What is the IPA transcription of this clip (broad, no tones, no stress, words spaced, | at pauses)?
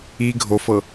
i ɡʱofɤ